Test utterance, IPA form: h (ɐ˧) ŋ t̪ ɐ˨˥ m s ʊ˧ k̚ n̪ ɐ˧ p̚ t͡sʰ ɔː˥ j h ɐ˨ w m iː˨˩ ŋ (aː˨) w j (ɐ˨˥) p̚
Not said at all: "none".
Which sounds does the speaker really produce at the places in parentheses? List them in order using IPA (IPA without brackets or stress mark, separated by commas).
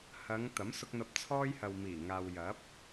ɐ˨˧, aː˨, ɐ˨˥